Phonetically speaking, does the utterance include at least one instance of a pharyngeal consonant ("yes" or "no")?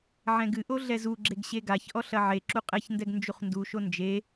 yes